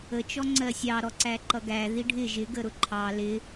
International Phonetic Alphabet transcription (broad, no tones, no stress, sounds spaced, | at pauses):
ə t͡ʃ ɔ ŋ͡ǀ ɜ sʲ ɑ ɾ ɔ ǀ æ ǃ ʌ ɡ æ ð i ɖʱ ɪ ʒ ɪ ɡ ə ɾ ʊ ǃʰ ɑ l ɪ